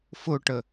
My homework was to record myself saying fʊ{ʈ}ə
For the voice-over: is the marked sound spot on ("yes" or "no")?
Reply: yes